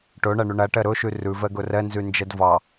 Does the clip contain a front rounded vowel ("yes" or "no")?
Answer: yes